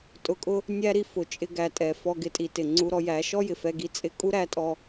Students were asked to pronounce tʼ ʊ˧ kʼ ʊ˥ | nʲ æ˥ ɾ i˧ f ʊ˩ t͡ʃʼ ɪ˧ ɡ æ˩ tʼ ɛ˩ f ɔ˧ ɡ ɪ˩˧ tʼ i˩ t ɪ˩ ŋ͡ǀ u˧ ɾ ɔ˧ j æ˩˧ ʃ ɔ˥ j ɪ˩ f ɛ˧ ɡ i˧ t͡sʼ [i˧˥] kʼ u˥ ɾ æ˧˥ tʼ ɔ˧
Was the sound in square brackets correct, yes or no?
no